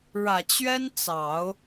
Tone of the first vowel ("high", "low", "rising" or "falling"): low